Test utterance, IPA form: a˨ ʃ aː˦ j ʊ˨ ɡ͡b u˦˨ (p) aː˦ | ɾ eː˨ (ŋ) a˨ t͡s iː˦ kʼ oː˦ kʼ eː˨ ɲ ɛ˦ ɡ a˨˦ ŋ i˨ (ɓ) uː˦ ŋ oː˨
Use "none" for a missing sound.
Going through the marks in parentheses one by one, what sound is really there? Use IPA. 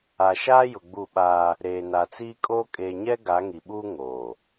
ɓ, n, ɓ

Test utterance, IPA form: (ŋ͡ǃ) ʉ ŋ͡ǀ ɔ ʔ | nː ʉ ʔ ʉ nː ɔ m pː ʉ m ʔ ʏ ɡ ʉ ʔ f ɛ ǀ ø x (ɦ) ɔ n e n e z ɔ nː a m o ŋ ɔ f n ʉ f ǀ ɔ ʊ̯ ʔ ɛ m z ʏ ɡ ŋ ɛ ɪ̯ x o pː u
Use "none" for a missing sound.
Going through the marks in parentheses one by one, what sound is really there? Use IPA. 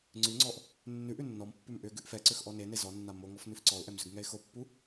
ŋ͡ǀ, ʔ

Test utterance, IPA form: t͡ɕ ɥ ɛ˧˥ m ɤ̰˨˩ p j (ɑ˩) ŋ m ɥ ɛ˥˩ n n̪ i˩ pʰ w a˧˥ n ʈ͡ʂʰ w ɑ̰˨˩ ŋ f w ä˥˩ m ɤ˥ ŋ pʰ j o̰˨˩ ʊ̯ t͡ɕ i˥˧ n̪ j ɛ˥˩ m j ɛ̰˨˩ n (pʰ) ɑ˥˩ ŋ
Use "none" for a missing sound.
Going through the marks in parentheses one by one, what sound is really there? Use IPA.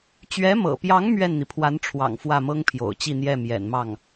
ɑ˧˥, m

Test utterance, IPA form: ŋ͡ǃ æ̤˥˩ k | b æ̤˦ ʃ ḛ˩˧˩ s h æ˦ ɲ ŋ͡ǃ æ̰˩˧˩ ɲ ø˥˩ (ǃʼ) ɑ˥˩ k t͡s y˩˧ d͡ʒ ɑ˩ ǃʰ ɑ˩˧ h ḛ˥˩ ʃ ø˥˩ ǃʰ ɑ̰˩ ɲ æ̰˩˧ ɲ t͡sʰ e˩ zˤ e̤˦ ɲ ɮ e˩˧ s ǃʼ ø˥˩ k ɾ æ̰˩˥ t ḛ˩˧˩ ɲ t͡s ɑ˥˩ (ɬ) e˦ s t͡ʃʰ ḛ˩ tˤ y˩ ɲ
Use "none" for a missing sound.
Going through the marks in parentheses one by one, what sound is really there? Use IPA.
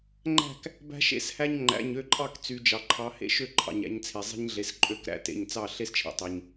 ǃʼ, ɬ

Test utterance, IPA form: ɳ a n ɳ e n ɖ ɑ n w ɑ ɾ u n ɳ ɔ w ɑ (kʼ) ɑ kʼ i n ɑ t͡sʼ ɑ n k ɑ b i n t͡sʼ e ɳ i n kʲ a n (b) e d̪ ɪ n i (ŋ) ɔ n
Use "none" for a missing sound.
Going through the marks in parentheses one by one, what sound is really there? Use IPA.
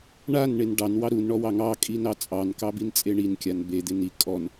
ŋ, b, kʼ

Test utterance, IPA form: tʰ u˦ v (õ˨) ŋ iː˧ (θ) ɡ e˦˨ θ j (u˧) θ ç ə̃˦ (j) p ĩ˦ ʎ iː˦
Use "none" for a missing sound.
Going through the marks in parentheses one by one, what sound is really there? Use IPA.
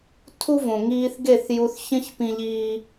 õ˨, θ, u˧, ç

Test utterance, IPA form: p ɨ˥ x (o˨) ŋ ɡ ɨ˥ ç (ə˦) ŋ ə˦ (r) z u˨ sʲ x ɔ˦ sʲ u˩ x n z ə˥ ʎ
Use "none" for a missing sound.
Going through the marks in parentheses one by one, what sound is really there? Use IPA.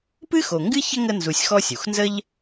o˨, ə˥, n

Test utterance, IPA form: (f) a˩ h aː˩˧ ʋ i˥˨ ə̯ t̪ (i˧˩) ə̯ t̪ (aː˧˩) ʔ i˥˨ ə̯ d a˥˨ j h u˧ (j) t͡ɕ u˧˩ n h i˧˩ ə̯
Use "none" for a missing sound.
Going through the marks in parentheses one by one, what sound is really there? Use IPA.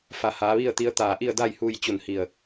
f, i˧˥, aː˧˩, j

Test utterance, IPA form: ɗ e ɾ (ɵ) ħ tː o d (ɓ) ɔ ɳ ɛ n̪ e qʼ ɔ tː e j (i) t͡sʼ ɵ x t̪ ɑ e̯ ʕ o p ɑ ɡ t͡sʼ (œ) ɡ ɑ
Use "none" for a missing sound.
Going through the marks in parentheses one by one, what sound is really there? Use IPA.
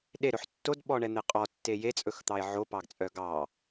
ɵ, ɓ, e, œ

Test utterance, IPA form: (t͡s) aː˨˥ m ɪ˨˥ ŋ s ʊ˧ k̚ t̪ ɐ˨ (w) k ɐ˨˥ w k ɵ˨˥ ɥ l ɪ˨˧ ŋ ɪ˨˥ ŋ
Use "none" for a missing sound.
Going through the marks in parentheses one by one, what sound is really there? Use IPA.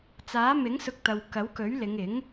t͡s, w

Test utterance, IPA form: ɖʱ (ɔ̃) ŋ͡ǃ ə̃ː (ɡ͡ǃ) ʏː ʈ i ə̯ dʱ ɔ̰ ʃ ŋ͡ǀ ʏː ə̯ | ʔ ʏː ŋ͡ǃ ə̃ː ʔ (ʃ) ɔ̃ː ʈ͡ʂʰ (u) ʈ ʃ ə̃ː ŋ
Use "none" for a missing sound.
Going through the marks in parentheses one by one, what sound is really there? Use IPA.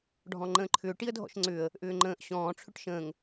ɔ̃, ǃʰ, ɕ, ʏ

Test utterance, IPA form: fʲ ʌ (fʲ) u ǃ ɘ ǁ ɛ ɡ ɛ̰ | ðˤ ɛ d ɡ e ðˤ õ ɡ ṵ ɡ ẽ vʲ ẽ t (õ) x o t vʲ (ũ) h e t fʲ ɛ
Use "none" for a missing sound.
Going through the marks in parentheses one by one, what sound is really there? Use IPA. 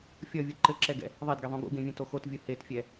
vʲ, o, u

